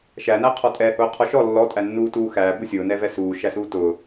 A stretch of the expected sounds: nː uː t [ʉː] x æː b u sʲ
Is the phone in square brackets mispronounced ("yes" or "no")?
yes